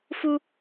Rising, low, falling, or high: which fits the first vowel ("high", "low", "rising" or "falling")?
high